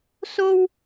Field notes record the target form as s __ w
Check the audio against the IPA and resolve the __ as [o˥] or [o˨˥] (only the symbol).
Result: o˥